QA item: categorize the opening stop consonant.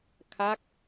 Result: aspirated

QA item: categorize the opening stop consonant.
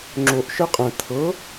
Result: click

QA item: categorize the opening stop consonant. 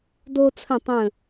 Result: plain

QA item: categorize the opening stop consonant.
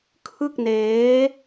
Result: aspirated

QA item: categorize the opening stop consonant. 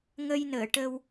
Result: plain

